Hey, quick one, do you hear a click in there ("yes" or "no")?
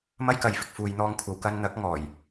no